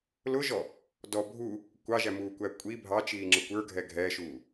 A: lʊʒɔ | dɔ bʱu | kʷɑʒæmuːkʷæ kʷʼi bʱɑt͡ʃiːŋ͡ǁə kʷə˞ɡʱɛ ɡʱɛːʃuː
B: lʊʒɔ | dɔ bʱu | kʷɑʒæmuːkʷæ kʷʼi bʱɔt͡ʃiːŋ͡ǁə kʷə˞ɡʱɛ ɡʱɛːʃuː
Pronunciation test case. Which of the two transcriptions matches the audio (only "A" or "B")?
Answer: A